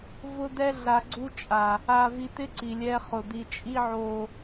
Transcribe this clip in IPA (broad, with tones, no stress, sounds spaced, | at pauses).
v ʊ˦ d̪ ɛ˦ ɮ a˨ ɡ͡ǀ u˦ t͡ʃʼ a˨ | a˨ v i˨ t̪ ɪ˦ ǀ i˨ lʲ ɛ˦ χ ʊ˨ d̪ i˨ t͡ʃʼ i˦ ʕ o˨